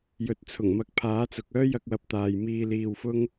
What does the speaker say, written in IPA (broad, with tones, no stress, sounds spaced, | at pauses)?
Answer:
j ɵ˨ t̚ t͡sʰ ʊ˨˩ ŋ m ɐ˨˥ k̚ pʰ aː˨˥ t͡s ʊ˨ k̚ œː˥ j ɐ˧ k̚ w ɐ˨˥ p̚ t̪ aː˨ j m iː˧ l iː˧ w f ʊ˥ ŋ